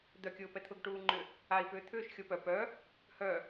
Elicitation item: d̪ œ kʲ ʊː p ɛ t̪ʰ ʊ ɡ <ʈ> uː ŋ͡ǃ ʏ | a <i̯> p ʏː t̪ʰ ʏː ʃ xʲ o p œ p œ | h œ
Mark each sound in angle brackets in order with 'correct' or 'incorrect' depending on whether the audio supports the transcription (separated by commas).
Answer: correct, correct